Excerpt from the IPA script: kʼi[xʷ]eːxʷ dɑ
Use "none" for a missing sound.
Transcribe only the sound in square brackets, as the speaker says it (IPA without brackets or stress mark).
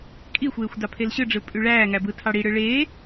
xʷ